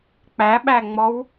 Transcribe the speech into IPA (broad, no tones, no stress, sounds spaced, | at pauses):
k͡p æ ɓ æ ŋ͡m ɔ w